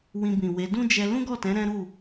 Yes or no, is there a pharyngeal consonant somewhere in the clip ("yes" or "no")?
no